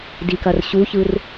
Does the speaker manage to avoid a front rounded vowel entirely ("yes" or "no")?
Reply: yes